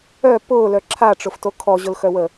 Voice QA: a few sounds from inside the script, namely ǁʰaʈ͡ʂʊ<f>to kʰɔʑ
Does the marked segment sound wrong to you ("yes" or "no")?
no